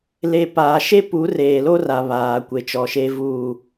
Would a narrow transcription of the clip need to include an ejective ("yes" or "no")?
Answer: no